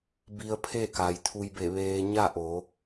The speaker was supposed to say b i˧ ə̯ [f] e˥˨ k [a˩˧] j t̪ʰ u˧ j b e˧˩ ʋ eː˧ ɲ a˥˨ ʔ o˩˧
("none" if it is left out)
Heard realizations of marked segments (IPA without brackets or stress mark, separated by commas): pʰ, a˩